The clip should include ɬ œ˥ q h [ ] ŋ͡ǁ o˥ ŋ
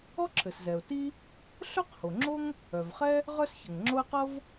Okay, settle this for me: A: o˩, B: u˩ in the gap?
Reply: A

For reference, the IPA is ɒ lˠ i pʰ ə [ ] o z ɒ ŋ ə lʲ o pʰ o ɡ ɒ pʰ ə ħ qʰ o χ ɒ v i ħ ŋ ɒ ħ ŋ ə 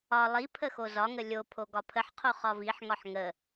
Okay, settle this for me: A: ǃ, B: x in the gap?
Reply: B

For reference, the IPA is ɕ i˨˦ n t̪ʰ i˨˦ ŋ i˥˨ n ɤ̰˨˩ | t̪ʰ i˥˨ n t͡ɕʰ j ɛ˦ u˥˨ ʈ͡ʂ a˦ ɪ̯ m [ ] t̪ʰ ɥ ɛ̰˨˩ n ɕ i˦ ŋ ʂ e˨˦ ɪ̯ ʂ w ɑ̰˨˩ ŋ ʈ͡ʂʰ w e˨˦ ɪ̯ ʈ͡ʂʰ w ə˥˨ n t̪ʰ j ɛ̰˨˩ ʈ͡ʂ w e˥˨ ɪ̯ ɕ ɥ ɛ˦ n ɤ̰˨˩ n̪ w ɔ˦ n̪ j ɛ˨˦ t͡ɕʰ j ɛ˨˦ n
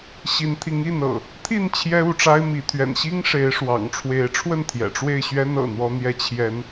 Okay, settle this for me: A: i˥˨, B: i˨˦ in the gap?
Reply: B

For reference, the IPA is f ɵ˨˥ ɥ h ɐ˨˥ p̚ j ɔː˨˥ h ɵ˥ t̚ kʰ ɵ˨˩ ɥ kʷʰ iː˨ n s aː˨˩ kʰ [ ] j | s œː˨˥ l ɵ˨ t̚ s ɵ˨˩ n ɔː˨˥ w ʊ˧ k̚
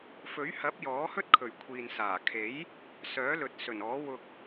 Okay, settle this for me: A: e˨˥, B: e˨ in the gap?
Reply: A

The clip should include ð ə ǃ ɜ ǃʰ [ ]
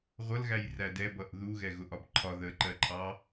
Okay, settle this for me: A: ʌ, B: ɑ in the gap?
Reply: B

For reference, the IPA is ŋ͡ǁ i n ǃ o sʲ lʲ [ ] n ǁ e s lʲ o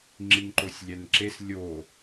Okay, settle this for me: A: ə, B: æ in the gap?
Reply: B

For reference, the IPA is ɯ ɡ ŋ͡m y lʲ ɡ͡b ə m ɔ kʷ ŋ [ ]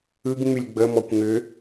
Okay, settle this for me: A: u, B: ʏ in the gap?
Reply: B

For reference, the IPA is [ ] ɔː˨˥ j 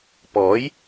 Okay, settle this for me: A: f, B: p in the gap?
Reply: B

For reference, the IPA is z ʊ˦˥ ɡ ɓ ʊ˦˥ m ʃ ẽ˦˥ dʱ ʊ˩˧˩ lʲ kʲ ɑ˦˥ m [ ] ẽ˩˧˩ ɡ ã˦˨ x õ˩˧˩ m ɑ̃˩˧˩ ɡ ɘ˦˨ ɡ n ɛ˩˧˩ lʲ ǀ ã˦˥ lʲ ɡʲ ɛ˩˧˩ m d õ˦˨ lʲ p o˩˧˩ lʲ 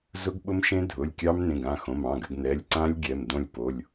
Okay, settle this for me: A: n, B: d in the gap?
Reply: A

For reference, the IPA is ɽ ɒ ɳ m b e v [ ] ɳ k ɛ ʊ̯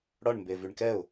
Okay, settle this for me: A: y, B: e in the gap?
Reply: A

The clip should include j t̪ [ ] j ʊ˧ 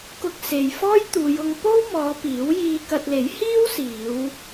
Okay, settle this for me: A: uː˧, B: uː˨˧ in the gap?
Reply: B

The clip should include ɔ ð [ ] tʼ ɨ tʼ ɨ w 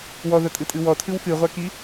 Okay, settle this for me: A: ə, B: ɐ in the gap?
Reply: B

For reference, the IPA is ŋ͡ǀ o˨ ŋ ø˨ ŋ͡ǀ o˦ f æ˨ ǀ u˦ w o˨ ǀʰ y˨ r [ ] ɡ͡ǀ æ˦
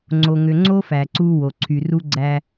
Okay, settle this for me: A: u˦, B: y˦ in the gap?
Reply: A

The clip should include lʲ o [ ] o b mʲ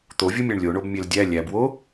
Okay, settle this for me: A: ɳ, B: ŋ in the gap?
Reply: A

